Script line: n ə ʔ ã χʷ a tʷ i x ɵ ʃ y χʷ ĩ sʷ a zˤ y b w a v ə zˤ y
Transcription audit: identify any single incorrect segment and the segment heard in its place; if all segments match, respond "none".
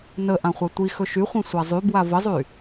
none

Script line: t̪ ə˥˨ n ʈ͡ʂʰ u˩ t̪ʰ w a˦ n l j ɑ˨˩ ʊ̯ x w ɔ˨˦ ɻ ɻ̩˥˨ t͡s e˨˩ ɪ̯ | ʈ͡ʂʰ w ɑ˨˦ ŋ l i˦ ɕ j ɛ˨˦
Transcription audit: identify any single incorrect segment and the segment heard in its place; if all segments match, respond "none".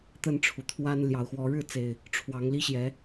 none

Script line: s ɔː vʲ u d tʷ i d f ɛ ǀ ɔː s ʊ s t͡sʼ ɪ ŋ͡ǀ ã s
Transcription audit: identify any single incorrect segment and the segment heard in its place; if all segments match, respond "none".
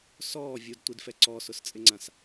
none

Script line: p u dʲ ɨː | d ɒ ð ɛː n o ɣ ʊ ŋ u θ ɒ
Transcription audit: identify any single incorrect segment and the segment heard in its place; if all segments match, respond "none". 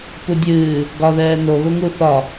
d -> ɡ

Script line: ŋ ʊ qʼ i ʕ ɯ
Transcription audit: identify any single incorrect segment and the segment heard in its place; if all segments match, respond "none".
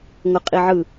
none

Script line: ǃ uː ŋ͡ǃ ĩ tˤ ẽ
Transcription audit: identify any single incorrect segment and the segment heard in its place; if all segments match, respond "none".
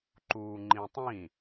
ẽ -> ĩ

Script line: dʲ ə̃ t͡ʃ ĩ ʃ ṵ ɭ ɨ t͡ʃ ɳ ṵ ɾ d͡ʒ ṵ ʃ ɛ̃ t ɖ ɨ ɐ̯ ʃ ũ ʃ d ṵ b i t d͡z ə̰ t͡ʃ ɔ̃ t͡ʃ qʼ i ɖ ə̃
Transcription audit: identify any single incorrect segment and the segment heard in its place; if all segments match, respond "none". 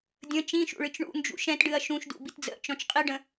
ɾ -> n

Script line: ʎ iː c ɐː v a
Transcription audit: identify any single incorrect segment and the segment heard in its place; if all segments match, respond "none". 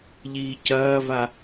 none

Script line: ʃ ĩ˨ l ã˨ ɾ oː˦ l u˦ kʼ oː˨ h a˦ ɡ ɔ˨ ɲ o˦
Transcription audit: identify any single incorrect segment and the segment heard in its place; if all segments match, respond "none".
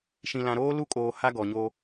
none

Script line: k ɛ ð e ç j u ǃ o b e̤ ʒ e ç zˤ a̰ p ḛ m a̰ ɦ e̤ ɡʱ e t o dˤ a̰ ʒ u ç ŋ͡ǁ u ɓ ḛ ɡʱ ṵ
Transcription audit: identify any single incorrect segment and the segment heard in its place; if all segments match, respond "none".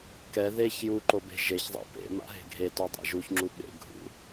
none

